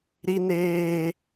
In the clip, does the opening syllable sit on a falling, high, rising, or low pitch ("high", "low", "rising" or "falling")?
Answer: high